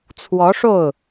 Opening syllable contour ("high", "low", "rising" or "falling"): rising